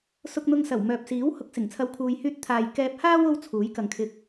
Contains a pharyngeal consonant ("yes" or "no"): no